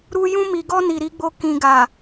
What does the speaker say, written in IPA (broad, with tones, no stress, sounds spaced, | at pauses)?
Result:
ɾ u˧ j ũ˧ m i˨ ɡ ɔ˧ n i˨ ɾ i˨˦ ɡ͡b o˧ k ĩ˨ ɡ a˨